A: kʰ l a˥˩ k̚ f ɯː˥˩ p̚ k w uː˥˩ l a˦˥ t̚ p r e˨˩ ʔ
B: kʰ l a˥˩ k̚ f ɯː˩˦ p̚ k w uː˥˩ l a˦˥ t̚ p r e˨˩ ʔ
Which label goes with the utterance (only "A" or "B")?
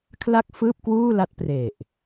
A